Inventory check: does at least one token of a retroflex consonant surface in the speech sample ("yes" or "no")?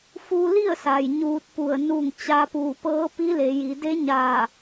no